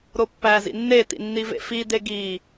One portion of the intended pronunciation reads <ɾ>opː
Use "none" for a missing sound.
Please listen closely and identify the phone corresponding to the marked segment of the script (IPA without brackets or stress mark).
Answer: ɾ